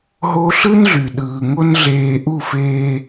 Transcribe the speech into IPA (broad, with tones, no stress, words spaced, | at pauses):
ɦo˦ ɬɯ˦nɮy˨ɗɯː˨ŋo˦n ɮeː˦ ʔu˦˨feː˦